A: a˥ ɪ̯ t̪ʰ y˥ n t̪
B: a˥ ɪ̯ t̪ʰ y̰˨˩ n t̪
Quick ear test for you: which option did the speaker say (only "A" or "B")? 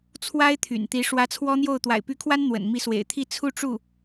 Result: B